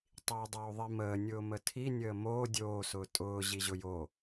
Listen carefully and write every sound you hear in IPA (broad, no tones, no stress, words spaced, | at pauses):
tˤiːdˤoːðˤiməː nʲʊːmətʰi nʲəːmoː dʲoː sʊːtʼʊː ʑiʑʊjo